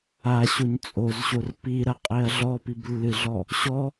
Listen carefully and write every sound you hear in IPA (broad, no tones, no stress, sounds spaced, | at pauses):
a ɕ o ɲ t͡sʼ o z ɕ o r p i ɾ ɐ qʼ e ɐ̯ ɮ ɔ p i b lː ɨ ɮ ɔ | ɕ ɔ